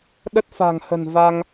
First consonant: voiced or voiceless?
voiced